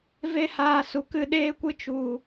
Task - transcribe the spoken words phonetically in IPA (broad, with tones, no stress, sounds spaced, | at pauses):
v e˦ h aː˧ s u˨ k ɨ˧ ɗ eː˦ kʷ ɨ˦ t͡ʃ u˨